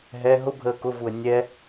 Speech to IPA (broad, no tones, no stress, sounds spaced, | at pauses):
ɦ ɛ ɦ ʊ bʱ əː k ʊ v u ə̯ nʲ ɛ